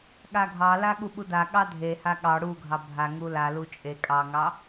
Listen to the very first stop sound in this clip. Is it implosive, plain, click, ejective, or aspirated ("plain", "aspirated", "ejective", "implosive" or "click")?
implosive